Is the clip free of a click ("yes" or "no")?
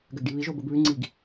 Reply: no